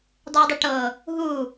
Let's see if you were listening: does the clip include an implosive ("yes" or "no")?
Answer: no